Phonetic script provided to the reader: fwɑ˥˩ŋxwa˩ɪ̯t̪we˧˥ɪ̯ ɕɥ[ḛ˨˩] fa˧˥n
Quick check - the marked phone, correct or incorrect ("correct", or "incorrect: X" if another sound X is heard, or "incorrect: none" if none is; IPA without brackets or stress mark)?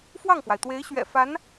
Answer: incorrect: ɛ̰˨˩